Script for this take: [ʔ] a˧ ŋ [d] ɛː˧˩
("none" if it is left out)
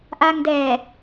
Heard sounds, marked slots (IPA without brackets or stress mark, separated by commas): ʔ, d